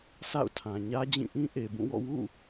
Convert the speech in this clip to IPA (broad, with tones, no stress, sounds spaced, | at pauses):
s a̰˦˨ ʊ̯ tʰ ã˨ ɲ ä˦ d͡ʑ ĩ˦˨ ʔ ĩ˦ ʔ e˨ b ũ˦˨ w ɔ̰˦˨ w ṵ˦˨